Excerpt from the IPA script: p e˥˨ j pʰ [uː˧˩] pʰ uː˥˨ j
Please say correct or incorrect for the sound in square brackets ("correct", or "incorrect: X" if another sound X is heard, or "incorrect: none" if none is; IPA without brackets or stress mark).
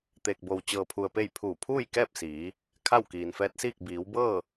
correct